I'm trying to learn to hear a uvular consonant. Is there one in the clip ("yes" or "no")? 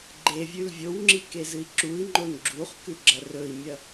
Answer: yes